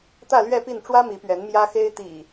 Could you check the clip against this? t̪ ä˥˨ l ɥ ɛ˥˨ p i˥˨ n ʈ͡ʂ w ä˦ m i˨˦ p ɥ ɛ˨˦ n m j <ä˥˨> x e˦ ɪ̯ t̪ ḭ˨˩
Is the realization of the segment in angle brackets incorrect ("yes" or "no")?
yes